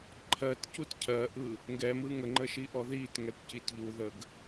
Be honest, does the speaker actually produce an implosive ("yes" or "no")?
no